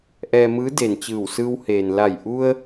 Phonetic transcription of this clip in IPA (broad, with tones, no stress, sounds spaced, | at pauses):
ʔ ɛː˧ m ɯː˧˥ d e˩ n t͡ɕ ɯː˧˩ w s ɯː˧ w h eː˩ n l a˧˩ j ʔ u˧ ə̯